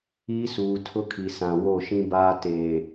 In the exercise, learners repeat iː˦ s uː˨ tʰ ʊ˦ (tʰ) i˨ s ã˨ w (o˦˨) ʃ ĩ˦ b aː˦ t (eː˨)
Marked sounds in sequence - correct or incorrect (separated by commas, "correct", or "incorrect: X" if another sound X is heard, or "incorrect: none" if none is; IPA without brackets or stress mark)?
incorrect: kʰ, correct, correct